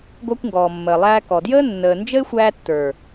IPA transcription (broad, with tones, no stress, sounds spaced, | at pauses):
ɡʷ æ˧ kʷ ŋ ɡ ɔː˨ mː əː˨ lˠ æː˧ k ɔ˨ d j əː˦ nː əː˨ n d͡ʒ ə˦ ɪ̯ xʷ æː˧ tː ə˞˨